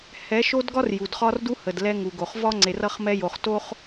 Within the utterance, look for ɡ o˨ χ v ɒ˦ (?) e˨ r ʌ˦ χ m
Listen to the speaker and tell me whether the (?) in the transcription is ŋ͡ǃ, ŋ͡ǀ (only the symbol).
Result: ŋ͡ǀ